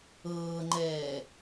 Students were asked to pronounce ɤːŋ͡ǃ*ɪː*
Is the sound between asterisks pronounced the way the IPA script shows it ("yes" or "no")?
no